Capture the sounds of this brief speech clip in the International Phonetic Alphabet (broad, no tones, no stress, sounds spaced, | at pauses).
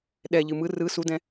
ɗ ɛ ʎ ɨ m ɯ r ɯ s u d ɛ̃